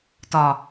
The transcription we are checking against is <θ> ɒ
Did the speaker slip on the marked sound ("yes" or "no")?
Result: yes